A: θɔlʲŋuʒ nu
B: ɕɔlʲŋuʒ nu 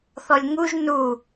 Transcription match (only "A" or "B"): A